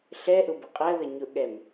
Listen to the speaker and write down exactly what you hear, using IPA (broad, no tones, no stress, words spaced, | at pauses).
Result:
ɬɛʔʊ bəqʼɜðə ɲʊʔɠɛm